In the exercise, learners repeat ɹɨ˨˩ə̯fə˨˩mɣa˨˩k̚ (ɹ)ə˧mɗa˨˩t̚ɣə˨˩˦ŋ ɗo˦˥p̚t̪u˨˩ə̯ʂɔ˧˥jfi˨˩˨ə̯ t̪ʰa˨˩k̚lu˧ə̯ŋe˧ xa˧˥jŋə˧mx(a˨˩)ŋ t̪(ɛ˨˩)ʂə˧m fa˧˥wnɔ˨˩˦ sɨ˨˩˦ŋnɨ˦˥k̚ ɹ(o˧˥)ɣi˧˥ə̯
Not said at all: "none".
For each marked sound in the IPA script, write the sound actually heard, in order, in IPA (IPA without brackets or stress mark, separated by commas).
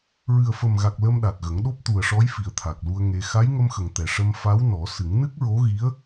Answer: l, ə˨˩, ɛ˨˩, o˧˥